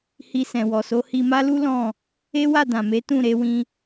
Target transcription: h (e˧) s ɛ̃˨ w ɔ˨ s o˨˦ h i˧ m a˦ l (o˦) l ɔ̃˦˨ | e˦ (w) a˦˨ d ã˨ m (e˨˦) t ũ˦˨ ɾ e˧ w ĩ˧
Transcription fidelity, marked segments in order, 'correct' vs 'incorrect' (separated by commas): incorrect, incorrect, correct, correct